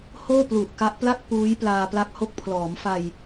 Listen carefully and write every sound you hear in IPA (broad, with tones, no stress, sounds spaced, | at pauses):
h oː˥˩ p l u˨˩ ʔ k a˦˥ ʔ p l a˥˩ k̚ p uː˦˥ j p l aː˧ p l a˦˥ k̚ h o˦˥ k̚ pʰ l ɔː˩˦ m f a˧ j